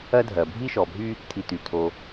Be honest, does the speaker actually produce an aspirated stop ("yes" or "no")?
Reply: yes